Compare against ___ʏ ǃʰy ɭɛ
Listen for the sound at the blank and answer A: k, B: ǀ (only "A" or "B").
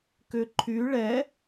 A